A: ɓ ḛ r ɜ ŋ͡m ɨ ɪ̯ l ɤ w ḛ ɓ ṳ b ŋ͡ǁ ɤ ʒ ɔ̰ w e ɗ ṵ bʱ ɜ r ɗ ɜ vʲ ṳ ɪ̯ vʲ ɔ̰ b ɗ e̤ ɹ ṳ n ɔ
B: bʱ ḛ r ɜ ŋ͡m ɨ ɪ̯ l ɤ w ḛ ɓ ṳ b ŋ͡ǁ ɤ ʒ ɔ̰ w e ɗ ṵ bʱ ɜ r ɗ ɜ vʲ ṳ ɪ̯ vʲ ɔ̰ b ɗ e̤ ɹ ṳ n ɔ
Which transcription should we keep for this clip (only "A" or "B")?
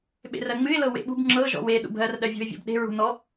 A